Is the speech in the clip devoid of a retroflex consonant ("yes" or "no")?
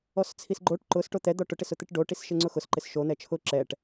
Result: no